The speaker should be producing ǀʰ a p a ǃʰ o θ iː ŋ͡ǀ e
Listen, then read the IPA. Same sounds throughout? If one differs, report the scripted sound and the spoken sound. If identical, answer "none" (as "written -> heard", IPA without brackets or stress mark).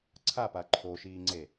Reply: θ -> ʃ